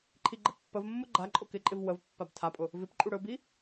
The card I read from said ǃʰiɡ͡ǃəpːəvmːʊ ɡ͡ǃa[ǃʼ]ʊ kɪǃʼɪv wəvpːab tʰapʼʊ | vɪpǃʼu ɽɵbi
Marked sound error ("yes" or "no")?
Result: no